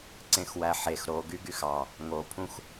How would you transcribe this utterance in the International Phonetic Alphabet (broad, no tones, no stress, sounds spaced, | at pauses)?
ǀ ẽ x w æ ħ e x ɾ o ɡ y ɡ y x ɑ | ŋ o pʰ ũ x